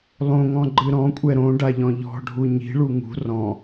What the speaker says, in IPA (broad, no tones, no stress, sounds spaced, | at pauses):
lˠ õ ŋ ɔ̃ ɡ͡ǃ ɨ ɾ ɔ̃ kʷʼ ɛ ɾ õ ɖ a ʎ ɔ̃ ʎ ɔ̤ ɖʱ u ɲ i̤ ɭ u ŋ ṳ r ɔ̃